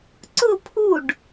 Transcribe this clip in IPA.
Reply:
ǀʊ pʰuɖ

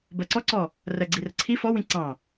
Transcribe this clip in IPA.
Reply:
bɜǀɔǀɔ | rɜɡ͡ǀirəǀʰi fɔwĩ ǀɑ̃

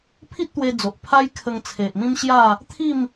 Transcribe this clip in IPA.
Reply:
pʰi˦t̚t̪we˧d͡zo˨ʔ pʰa˦jkʰə˧ŋt͡sʰe˨ʔmĩ˦m ɕja˥˧ | t̪ʰi˥˧m

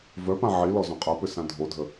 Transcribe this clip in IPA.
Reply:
vœpã ʕi lɔzõqʼɤpʏ sãdʱodʱə

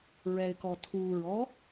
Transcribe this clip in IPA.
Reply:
ɹɛɪ̯kɔ tʰuɹɔ

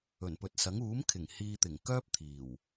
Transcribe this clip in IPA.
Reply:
ɵ˨˩npɵ˨˥t̚sɐ˨˥ŋ uː˨˥m kʰɪ˨˩ŋhiː˧t̪ɪ˨˩ŋ kœː˥p̚t̪ʰiː˨˩w

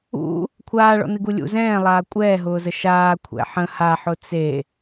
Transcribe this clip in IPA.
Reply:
ṵ | kʷʰaːɭɔ̰ nɨɡulʲṵ zɛ̃ː lˠaːkʷʼɛːɦʊːzə ʃaː kʷʰɛ̰ħə̃ haħʊ t͡se

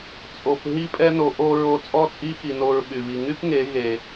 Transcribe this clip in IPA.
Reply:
t͡sʼo˨p ɦi˧pʼɛ˧no˨ ʔo˧ ɹo˧t͡sʼɔ˦t͡sʼi˦ xi˧no˧ɹɓy˨βi˧ ŋy˦pŋe˨˦ ɣe˨

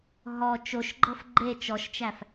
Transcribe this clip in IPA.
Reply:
ɦɔ t͡ʃoʃɡ͡ǃɤf ɡ͡ǃe t͡ʃɔʃt͡ʃæf

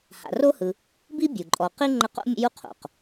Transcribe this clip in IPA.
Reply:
ha̰˨ro˥hɯ˨ | bi˥bʲu˩ǃʼɔ˨qi˥ ŋ͡ǃə˦qo̰˥ mʲə̰˦ju˦ qʰo̰˩q

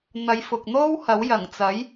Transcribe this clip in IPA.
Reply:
n̪ɐ˨˧jfʊ˨k̚n̪o˥whɐ˨˥w jɐ˨˩ŋt͡sɐ˨˥j

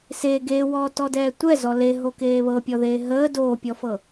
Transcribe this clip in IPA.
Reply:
se ɡewɔːtɔdɛː tʷɛzɔ leɦokeː βɤpʲɔðeː ɦəː doːpʲɔfɤ

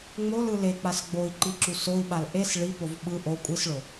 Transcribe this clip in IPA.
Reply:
ŋ͡molɯ lek͡pas ɡ͡boi̯ǃiǁu soi̯ɓal ʔes ɭipov ɓɯ ʔo kʷʼisɭo

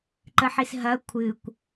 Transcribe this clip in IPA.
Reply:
ǃəħisɦɐ kʷʰɨkʷ

